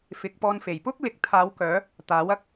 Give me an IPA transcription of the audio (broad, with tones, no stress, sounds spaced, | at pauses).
f ɪ˨˥ k̚ p ɔː˧ n f e˨˩ j p ʊ˥ k̚ l ɪ˨ k̚ t̪ʰ aː˨˧ w k œː˨˧ | t̪ aː˨˥ w ɐ˥ k̚